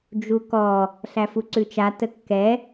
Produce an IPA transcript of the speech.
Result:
d͡ʒukɔ | ɬæfuǀʉt͡ʃa təkːɛ

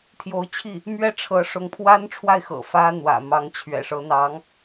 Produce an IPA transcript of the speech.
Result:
t̪ʰjo˧˥ʊ̯ t͡ɕʰi˥˩ | mɥɛ˥ʈ͡ʂʰɤ˧˥ ʂʊ˧˥ŋpʰwa˥nʈ͡ʂʰwa˥˩ɪ̯ xɤ̰˨˩ fä˥n̪wä̰˨˩ mɑ˧˥ŋt͡ɕʰɥɛ̰˨˩ʂɤ˧˥n̪ɑ˧˥ŋ

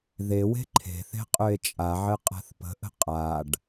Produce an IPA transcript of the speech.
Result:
ðewe̤ ǃʰe̤θe̤ qʼøe̯t͡ʃʼaʕɘ qʼa̤θpə̤ʔə̤ qʼaɖ

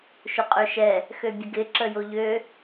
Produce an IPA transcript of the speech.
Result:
ʃʊqʼøʃɛ | xøbʲəɡɪ ǁəjoʎø

